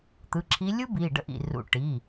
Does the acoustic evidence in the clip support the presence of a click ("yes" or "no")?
yes